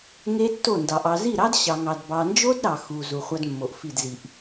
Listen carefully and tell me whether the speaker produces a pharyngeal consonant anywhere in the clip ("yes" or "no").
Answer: no